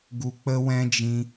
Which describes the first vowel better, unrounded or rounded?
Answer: rounded